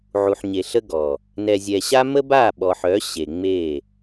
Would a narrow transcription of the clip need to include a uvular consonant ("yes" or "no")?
no